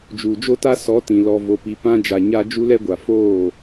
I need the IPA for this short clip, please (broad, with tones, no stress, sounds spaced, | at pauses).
d͡ʒ uː˨ d͡ʒ o˦ t a˦ s ɔ˨˦ t ĩ˨ l ɔ˨ v o˨ p i˨ p ã˦ d͡ʒ a˨ ɲ a˦ d͡ʒ u˦ l ɛ˦ ɡʷ a˨ f oː˦˨